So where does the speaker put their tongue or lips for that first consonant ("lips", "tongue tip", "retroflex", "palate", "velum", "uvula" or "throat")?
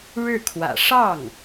retroflex